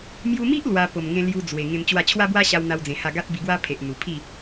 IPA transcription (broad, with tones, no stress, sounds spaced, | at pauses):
m j u˧ m i˦ ʔ l w a˧ p o˨˩ m ŋ ẽ˧ l j u˧ d͡z w e˨˩ ŋ ẽ˧ m t͡ɕ w a˥˧ t͡ɕʰ w a˦ b w a˦ ɕ a˧ w n̪ a˦ w d͡z ẽ˧ h a˥˧ ɡ a˦ t̚ b i˧ ɡ w a˦ pʰ e˨ ʔ n̪ u˨˩ pʰ i˥˧